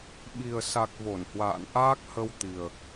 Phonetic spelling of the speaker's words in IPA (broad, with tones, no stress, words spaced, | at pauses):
ɓi˨˩ə̯sa˨˩k̚ vo˧˩nhwa̰ː˧˨n ʔaː˦˥k̚hə˧w t̪i˨˩ə̯